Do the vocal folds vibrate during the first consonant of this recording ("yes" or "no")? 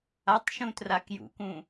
no